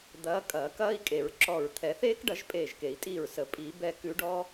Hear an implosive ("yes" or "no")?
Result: no